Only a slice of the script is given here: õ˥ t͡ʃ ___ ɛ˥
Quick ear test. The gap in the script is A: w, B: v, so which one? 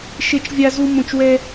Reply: A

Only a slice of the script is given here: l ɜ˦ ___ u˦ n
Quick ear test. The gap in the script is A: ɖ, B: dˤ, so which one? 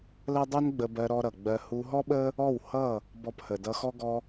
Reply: B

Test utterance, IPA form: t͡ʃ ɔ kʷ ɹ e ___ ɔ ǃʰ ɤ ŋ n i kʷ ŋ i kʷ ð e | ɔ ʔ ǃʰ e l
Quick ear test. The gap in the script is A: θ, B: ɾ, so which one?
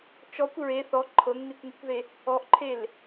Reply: A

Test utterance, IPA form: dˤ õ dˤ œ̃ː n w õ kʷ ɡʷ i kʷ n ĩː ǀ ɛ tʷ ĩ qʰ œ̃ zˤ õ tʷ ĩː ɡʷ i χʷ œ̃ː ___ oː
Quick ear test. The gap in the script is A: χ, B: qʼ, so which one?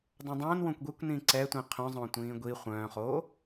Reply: A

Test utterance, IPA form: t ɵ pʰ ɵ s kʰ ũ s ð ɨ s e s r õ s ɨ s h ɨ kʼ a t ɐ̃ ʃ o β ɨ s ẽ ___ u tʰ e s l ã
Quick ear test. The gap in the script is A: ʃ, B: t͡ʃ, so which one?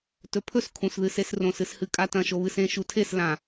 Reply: A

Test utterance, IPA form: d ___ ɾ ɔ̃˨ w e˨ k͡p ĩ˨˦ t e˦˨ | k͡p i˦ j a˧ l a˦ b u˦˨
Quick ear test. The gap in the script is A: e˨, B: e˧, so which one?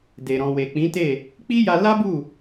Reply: A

